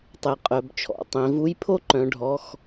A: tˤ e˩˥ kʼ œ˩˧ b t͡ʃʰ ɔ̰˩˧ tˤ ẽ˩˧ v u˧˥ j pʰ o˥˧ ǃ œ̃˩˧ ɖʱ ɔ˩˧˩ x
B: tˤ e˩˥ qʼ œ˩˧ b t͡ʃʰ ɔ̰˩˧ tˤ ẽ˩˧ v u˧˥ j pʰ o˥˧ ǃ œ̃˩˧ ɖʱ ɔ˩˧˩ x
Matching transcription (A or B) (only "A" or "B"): B